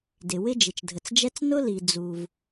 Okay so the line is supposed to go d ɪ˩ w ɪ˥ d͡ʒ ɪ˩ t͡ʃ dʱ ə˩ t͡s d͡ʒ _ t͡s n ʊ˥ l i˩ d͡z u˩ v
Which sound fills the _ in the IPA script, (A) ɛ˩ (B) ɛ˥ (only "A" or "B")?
B